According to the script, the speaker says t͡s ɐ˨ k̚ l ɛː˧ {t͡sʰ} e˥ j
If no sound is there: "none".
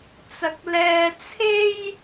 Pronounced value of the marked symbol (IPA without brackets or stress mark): t͡sʰ